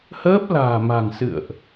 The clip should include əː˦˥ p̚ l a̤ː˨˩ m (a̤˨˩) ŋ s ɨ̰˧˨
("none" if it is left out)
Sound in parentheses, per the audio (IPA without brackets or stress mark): a̤˨˩